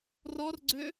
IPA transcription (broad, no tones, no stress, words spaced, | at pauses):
rɔrɡ͡ǀø